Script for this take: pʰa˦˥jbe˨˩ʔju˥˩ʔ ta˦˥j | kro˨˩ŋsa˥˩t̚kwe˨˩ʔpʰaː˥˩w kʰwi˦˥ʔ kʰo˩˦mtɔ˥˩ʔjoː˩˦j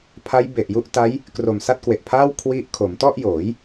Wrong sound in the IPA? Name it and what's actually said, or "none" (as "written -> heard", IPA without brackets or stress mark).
ŋ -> m